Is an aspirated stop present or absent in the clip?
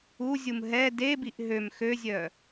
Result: absent